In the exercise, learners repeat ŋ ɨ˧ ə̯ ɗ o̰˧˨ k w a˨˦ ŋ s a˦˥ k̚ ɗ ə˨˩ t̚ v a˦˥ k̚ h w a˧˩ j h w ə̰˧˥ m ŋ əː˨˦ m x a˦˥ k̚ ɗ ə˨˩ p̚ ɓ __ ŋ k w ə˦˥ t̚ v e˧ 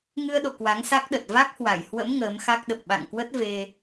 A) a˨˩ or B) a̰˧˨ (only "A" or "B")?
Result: B